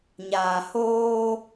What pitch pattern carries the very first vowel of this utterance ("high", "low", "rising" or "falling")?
low